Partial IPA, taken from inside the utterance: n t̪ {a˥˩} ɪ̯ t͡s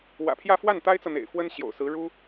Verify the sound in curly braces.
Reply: incorrect: a˥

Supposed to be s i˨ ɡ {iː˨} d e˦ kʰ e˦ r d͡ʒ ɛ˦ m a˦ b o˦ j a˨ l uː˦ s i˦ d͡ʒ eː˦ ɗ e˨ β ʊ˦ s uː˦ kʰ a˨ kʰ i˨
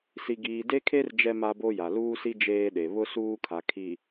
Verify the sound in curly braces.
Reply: correct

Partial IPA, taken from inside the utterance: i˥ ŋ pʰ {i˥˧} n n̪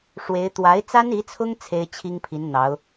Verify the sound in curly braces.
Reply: incorrect: i˧˥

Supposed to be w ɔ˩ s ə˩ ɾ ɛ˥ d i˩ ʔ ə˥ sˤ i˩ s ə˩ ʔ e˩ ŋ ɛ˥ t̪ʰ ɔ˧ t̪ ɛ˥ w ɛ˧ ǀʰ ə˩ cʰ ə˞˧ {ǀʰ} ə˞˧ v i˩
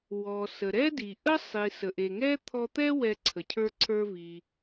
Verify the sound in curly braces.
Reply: correct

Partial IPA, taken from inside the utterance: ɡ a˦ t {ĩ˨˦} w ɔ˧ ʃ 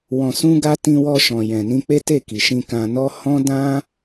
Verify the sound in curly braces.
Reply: incorrect: ĩ˧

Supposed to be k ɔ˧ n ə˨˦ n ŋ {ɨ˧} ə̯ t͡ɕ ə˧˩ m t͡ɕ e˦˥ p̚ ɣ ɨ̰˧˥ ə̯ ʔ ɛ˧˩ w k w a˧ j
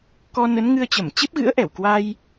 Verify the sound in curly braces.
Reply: correct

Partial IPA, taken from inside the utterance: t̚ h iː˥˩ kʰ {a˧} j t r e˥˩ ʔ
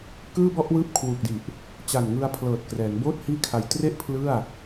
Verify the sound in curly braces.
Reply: correct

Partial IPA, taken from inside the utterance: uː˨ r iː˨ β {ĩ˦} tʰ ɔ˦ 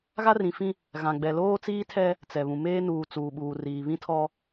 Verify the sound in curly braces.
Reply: correct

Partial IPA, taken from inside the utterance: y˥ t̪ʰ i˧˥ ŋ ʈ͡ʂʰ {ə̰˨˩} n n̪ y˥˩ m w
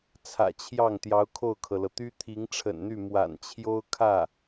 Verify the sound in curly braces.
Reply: correct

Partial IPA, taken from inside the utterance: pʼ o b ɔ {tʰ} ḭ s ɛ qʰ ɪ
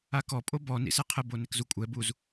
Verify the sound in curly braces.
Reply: incorrect: n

